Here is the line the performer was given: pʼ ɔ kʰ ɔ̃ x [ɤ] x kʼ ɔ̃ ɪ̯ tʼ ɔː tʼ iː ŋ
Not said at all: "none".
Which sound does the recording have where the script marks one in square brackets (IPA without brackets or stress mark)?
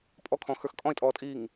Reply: ə˞